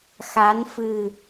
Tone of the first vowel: rising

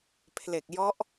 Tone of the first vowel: low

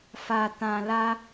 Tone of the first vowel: low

